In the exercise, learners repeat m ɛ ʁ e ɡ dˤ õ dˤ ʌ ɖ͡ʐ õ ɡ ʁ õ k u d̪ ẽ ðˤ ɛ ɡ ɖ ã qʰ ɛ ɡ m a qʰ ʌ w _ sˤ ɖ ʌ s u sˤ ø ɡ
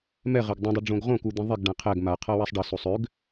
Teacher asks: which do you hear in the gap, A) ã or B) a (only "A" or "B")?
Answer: B